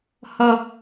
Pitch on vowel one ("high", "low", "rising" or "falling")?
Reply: high